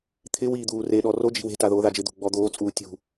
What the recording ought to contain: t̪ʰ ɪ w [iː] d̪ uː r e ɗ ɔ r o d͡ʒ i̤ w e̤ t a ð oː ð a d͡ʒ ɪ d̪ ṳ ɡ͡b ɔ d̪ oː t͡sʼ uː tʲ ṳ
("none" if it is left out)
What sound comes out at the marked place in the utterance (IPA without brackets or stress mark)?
iː